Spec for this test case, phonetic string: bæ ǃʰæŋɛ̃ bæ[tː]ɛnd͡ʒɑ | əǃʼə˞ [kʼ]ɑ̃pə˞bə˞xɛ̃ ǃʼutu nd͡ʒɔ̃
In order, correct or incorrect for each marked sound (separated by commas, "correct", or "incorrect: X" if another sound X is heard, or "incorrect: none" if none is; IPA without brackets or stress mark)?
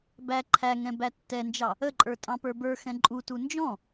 correct, incorrect: tʼ